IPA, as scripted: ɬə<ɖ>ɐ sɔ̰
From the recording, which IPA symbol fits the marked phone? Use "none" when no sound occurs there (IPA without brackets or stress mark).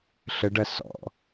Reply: ɖ